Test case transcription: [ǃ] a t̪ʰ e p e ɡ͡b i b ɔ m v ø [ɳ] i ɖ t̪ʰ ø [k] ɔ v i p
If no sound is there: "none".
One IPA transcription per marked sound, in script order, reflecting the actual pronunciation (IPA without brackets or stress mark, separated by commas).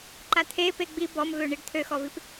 ǃ, ɳ, x